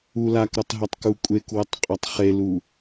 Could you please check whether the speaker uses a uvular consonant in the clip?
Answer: yes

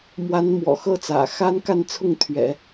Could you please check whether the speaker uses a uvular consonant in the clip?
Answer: no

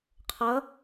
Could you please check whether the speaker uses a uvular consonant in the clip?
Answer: yes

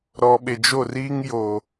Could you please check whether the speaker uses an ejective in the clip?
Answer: no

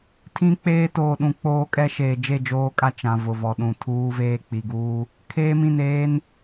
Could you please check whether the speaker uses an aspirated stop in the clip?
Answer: yes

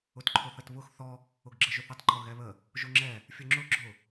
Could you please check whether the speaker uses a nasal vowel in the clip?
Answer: no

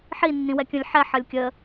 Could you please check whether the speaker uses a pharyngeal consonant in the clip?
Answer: yes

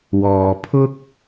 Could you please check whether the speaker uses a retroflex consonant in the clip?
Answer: no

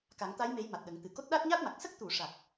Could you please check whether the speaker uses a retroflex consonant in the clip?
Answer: yes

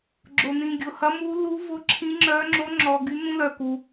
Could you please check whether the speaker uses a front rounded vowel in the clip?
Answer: yes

